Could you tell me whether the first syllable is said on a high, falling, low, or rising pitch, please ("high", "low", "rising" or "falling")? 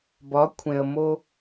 rising